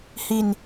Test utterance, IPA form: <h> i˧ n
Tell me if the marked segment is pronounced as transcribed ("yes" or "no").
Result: yes